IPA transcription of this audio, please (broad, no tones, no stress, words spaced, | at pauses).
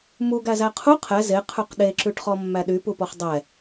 muɡ æzæqʰu qʰɛ ze qʰʉqɗeǁʉʈχɔ mːæɗypupɔχ dˤɛ